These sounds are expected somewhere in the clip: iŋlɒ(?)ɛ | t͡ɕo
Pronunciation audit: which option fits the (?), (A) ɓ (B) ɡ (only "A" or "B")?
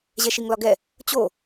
B